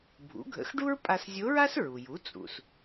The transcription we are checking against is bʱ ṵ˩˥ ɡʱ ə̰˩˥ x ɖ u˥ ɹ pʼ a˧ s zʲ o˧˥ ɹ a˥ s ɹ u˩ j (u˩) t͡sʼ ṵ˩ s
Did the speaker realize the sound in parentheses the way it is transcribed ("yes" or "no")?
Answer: no